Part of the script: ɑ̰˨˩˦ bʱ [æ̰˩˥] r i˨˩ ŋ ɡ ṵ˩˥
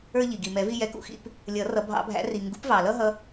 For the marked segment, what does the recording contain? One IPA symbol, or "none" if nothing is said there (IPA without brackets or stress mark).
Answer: æ̰˩˥